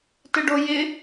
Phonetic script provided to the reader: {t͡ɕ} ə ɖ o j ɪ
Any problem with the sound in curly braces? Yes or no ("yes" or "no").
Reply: yes